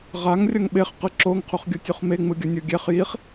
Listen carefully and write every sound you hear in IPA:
ʁ a ŋ rʲ ʌ ŋ ɓ e χ q ɯ ǁ o ŋ qʰ u χ ɡʲ o tʲ u χ m e ŋ͡m ɯ ɡʲ ʌ nʲ o ɡʲ ɛ χ j i χ

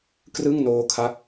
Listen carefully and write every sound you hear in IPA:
k r ɯ˥˩ ŋ n oː˦˥ kʰ a˦˥ k̚

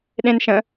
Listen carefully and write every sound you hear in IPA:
ɗ ẽ n ʃ ə̃

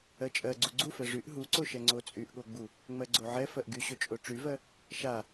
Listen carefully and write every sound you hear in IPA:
ɜ t͡ʃʼ ɜ ɡ͡ǀ u ɡ͡ǀ u f ɛ ʐ y ʔ ɦ u ǀ o ʃ ɛ ŋ͡ǀ o t͡sʼ y ʔ ɠ o ɡ͡b u | ŋ͡m ɜ ɡ͡ǀ o ʕ ɛ f ɜ ʔ ɡ y ɕ o t͡ʃʼ o ʈ͡ʂ y v ɜ | ʃ a

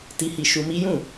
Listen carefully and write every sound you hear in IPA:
t i˧ h i˧ ʃ u˧ m i˦ j ũ˦˨

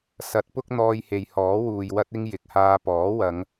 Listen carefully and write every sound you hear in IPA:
s ɐ˨˥ t̚ p ʊ˥ k̚ n̪ ɔː˧ j h e˨ j h ɔː˨˥ w uː˨ j w ɐ˥ t̚ ɪ˥ ŋ j ɪ˨ k̚ h aː˧ p ɔː˨˥ w ɐ˨˧ ŋ

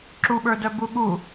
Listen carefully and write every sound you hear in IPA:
ǁ u ɓ ə˞ d œ b u ɠ u

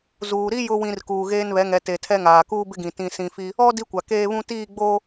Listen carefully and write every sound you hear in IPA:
z uː˨ ɾ i˦ j ʊ˨ w ĩ˨ r k uː˨ ɣ eː˦ n β ɛ˨˦ ŋ ɛ˨ t e˨ tʰ ɛ˦ ŋ aː˨ k uː˦ b ɪ˦ ɡ ĩ˨ t ĩ˨ s ĩ˨ f i˦ | ɔ˦ d i˦ kʷ a˨ k eː˦ β ũ˦ t iː˦˨ ɡ͡b oː˦

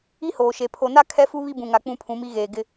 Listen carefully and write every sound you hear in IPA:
i˦ h oː˨ ʃ e˨ pʰ o˨ n a˦ kʰ ɛ˦ f u˦ β i˦ b ũ˨ ŋ a˨ k͡p ũ˦ pʰ ũ˨˦ m i˦ ɣ eː˨ ɡ ɪ˦

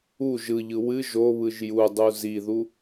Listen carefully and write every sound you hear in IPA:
u ʒ ɯ ʎ ɯ w ɨ ʒ o β ɯ ʒ j u dˤ u z i ð u

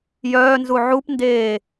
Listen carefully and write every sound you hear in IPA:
j œː n z u ʕ u p n d eː

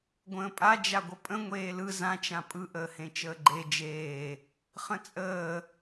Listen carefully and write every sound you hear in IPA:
ɡʷ ə̃ː pʼ a d͡ʒ a ɡʷ ə pʼ ə̃ ŋʷ eː l ɯ z ã t͡ʃ ã pʼ ɯ ʔ əː h ẽ t͡ʃ əː ɡ͡ǃ e d͡ʒ eː | χ ə̃ t͡sʼ əː

